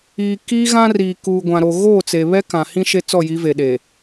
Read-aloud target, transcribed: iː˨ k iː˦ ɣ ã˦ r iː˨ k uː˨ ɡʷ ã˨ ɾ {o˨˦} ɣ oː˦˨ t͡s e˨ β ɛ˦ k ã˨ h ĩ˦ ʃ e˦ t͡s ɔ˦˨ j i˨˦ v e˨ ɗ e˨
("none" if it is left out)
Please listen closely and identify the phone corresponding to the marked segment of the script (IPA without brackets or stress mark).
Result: o˨